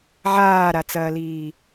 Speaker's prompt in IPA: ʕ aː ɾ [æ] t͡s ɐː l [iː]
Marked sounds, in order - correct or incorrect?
incorrect: a, correct

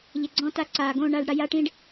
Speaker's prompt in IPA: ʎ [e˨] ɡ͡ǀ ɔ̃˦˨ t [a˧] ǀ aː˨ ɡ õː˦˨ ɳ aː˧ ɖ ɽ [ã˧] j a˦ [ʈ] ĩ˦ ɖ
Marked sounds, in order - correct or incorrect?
correct, incorrect: a˦, incorrect: a˧, correct

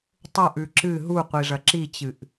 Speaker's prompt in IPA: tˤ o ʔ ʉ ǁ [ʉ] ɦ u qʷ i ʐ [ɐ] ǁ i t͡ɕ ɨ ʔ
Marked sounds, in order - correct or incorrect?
incorrect: ɨ, correct

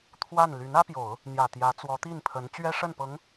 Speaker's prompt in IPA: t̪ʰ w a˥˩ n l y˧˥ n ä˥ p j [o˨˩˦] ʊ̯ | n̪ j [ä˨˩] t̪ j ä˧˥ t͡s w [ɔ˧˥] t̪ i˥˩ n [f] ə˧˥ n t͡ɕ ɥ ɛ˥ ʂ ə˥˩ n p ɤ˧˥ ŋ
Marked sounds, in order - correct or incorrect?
correct, correct, correct, incorrect: pʰ

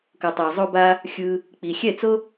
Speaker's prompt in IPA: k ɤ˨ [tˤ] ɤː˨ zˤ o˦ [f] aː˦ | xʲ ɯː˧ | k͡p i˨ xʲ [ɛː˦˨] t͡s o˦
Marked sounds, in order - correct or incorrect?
correct, incorrect: b, incorrect: ɛ˦˨

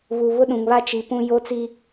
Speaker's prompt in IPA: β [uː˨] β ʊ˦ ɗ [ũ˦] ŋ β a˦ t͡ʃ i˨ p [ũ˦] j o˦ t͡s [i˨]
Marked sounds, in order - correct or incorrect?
incorrect: u˨, incorrect: ũ˨, correct, incorrect: i˦

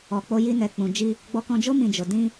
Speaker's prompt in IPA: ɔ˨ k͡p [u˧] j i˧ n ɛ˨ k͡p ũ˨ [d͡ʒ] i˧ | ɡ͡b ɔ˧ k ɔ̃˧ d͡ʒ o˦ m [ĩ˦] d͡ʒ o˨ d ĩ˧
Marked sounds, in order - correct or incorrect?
incorrect: o˧, correct, incorrect: ĩ˧

